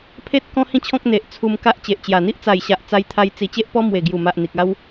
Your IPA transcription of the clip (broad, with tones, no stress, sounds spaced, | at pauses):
pʰ e˦ t̚ k ɔ̃˦ h ĩ˥˧ t͡ɕʰ ɔ̃˦ k̚ n̪ e˨ ʔ t͡sʰ u˧ m k a˦ ʔ t͡ɕ e˨ ʔ t͡ɕ j a˨˩ n̪ i˦ ʔ t͡s a˨˩ j ɕ a˨ ʔ t͡s a˦ j t̪ʰ a˦ j t͡s i˧ t͡ɕ e˦ ʔ p ɔ˦ m w e˨˩ ɡ j u˨˩ m a˨ ʔ n̪ i˨ k̚ a˦ w